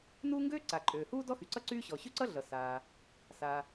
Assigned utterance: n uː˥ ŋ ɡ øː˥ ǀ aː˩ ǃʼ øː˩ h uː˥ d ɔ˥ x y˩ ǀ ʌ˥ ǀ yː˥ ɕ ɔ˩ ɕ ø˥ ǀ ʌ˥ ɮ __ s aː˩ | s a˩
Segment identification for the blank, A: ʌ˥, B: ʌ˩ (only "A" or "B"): B